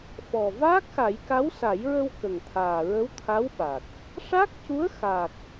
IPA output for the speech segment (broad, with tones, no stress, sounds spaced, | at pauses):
f ɔ˨˩ v aː˦˥ k̚ x a˨˩˦ j k a˧˥ w s a˨˩˦ j ɹ ə˧ w k ə˨˩ ŋ t̪ʰ aː˨˩ ɹ ə˧˥ w t̪ʰ a˧˥ w ɓ a˨˩ k̚ | ʂ a˦˥ k̚ c u˧˥ ə̯ x a˨˩ k̚